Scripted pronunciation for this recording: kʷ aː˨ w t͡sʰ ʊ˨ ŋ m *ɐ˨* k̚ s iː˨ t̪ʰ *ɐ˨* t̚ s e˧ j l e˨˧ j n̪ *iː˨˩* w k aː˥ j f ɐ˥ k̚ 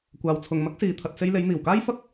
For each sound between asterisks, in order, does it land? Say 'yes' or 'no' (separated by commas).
no, yes, yes